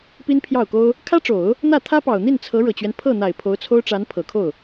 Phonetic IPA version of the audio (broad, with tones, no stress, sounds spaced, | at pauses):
p i˥ n pʰ j ɑ˥˩ ʊ̯ k o˥ ʊ̯ | kʰ ä˥ ʈ͡ʂ o˨˩˦ ʊ̯ | n̪ ä˥˩ t̪ʰ ä˥ p ɑ˨˩ ʊ̯ n̪ i˥˩ n t͡sʰ ɤ˧˥ ɻ ɤ˨˩ t͡ɕ ɥ ɛ˦ n pʰ ɤ˥˩ n̪ a˨˩ ɪ̯ pʰ o˧˥ ʊ̯ t͡sʰ o˥ ʊ̯ ʈ͡ʂ a˧˥ n pʰ ɤ˨˩ kʰ o˥˩ ʊ̯